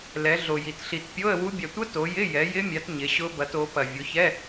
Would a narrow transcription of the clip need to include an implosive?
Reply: no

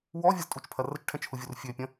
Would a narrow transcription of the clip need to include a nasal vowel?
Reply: yes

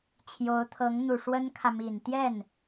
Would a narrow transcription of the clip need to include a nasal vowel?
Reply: no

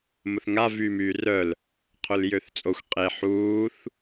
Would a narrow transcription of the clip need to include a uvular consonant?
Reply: yes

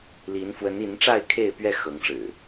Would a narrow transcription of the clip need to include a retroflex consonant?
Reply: yes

